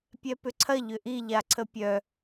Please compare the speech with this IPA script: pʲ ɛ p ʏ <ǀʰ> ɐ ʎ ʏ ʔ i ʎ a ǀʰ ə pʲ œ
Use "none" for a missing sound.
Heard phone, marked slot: ǀʰ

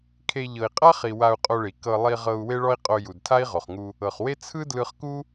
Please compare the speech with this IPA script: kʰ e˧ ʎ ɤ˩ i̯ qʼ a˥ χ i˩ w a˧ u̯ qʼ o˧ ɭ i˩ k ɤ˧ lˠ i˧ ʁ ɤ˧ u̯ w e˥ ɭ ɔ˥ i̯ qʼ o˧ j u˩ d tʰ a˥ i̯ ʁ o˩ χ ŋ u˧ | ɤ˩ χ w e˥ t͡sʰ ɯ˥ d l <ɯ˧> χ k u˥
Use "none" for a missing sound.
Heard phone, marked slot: ɯ˧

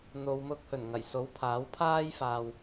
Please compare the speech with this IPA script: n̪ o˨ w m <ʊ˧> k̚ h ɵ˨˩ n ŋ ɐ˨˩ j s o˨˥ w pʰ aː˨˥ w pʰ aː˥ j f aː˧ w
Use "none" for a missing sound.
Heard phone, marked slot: ʊ˧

